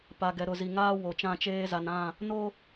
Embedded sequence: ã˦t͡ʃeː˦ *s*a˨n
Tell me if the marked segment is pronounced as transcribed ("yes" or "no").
no